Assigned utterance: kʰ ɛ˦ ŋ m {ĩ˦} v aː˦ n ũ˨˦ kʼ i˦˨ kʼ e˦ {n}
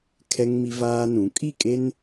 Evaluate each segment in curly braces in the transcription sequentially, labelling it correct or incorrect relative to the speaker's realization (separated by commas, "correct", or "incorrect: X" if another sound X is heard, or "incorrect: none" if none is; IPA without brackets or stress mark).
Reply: incorrect: i˦, correct